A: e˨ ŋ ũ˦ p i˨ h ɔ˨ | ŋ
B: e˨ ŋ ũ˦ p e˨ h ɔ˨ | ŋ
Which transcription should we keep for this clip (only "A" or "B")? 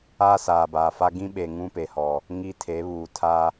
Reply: B